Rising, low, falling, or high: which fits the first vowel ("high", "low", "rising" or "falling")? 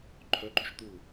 rising